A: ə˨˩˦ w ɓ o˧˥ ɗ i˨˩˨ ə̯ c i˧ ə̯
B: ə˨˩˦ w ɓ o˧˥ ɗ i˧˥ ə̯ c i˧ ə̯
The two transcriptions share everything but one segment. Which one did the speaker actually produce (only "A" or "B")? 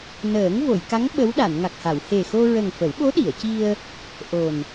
A